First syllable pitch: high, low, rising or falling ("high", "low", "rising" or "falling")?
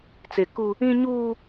low